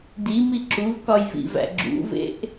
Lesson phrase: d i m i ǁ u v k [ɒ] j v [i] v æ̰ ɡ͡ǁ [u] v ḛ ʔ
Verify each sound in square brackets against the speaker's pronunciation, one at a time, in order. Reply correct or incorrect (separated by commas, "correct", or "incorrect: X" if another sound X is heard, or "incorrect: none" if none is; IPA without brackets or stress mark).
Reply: correct, incorrect: ḭ, incorrect: ṵ